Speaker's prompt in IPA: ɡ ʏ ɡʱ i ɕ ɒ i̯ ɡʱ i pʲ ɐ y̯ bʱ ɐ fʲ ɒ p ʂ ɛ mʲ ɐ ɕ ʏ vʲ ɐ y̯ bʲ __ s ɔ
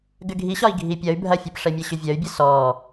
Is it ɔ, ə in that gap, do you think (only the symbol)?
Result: ə